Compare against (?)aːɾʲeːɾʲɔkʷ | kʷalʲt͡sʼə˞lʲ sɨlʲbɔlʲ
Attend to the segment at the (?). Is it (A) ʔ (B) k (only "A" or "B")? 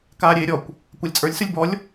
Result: B